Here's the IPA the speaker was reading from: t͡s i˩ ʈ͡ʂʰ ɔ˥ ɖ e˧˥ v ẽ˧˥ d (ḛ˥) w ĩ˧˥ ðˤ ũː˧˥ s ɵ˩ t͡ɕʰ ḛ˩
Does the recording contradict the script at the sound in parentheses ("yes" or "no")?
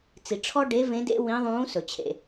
no